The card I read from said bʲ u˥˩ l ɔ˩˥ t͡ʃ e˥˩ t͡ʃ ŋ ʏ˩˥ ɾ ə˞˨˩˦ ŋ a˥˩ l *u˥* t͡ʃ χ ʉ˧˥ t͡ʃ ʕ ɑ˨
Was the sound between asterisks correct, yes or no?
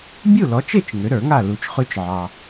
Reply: no